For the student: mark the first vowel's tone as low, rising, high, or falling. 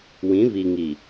rising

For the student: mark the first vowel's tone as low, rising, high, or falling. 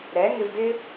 rising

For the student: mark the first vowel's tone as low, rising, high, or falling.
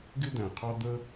high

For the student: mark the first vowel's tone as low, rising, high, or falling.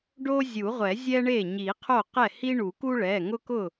high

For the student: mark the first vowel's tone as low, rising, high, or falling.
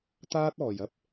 high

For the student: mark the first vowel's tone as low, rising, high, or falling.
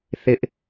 high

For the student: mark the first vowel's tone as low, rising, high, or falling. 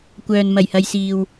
low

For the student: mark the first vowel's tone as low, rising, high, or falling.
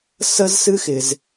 high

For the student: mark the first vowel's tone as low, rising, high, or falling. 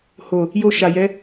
low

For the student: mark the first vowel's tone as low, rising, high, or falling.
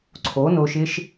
rising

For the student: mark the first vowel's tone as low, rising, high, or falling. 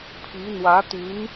rising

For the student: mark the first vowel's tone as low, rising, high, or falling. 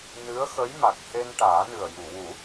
rising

